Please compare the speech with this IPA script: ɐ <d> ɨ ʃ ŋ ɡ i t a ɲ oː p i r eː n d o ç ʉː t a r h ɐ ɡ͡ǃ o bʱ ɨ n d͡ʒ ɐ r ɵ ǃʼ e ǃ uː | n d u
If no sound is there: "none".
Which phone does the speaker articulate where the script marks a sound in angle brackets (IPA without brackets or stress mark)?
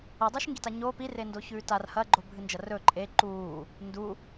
dˤ